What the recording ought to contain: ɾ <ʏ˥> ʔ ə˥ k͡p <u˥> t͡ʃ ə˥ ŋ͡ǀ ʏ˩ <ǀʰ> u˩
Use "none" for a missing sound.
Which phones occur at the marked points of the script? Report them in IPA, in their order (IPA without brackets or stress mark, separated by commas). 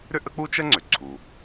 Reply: ʏ˥, u˥, ǀʰ